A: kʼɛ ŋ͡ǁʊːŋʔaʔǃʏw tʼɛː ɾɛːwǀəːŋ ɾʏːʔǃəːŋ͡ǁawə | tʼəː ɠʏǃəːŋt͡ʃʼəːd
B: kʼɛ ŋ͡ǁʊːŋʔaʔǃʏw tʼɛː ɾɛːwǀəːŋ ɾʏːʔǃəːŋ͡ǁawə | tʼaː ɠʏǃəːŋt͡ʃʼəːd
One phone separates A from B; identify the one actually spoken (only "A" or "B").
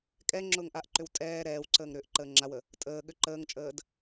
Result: A